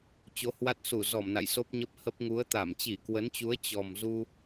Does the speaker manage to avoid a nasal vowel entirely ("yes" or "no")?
yes